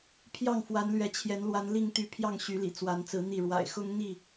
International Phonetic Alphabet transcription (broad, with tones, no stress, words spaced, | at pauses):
pʰjɑ˥˨ŋfwa˨˦nlɥɛ˨˦t͡ɕʰjɛ˨˦n lwa˨˦nli˥˨ŋt̪y˨˦ pʰjɑ˥˨ŋɕy˨˦lḭ˨˩ t͡swa˨˦nt͡sɹ̩˨˦n̪i˥˨ ɻwa̰˨˩ɪ̯xʊ˦ŋ n̪i˥˨